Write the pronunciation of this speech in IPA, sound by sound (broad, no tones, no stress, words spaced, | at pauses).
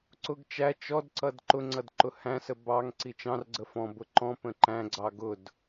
ǀʊɡ t͡ʃæ t͡ʃɔdǀʌd ǃʊŋ͡ǀʌd ǃʊhæ̃sə bɑŋ ǀit͡ʃɑ̃rɡ͡ǀə fɔ̃bʊ ǃɔ̃pə̃ ǃæ̃ɡ͡ǀɑ ɡʊd